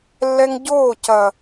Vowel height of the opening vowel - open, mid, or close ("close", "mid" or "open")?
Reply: mid